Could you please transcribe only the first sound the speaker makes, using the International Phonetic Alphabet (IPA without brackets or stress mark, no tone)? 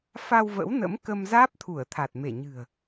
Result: f